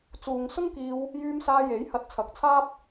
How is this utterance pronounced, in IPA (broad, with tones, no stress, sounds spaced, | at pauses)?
t͡s uː˨ ŋ s ʊ˥ ŋ k iː˧ w | j yː˧ m s aː˧ j e˨˥ j h ɐ˧ t̚ t͡sʰ ɐ˨˥ k̚ t͡sʰ aː˥ p̚